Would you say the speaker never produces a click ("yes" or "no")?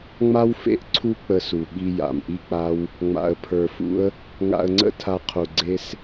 no